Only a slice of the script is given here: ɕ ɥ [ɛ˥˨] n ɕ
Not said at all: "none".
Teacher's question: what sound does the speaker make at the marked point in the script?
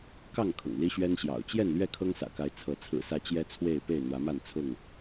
ɛ˦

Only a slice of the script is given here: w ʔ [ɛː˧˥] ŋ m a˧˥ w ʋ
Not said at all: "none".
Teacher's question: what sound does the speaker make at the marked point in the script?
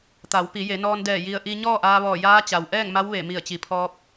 ɛː˥˨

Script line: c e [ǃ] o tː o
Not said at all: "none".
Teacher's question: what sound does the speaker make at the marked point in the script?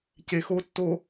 x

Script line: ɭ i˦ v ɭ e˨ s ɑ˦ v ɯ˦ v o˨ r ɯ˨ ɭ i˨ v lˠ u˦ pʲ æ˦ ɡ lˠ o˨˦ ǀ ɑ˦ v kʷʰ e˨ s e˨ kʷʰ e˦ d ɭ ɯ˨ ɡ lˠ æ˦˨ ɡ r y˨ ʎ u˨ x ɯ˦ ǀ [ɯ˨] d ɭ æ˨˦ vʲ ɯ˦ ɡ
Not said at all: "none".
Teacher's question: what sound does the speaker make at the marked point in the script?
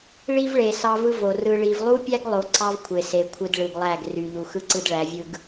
ɯ˦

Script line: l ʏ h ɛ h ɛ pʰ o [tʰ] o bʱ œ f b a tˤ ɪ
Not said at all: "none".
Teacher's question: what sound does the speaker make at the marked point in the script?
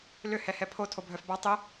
tʰ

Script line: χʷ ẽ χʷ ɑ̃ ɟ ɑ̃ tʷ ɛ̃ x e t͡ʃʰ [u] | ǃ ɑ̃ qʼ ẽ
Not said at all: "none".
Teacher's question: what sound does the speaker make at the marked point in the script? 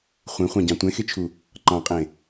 u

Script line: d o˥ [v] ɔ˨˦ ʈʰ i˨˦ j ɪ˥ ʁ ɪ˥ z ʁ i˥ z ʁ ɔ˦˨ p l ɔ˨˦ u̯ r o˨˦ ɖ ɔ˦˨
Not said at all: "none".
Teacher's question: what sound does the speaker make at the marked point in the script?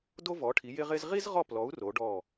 v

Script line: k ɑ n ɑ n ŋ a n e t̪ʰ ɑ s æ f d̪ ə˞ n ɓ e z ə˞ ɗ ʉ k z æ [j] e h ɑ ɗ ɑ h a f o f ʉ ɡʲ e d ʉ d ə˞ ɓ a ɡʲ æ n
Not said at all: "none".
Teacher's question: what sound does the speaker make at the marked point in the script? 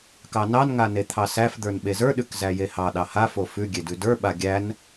j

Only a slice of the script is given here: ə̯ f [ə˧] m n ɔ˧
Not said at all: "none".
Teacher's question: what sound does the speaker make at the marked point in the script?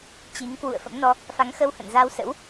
ə̰˧˥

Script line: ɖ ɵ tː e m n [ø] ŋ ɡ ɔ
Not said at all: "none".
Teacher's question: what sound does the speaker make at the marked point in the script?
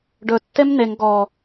e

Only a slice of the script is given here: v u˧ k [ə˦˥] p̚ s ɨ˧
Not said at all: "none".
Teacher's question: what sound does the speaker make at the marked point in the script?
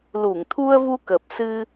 ə˨˩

